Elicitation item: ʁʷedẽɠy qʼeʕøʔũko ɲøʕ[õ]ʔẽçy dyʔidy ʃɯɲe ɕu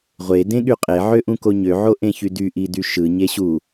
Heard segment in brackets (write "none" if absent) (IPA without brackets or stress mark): o